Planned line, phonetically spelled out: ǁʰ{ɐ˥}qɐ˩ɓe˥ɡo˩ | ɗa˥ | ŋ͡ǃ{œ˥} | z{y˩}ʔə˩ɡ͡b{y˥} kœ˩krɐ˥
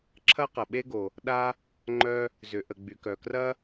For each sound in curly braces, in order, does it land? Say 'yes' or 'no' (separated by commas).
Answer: yes, yes, no, no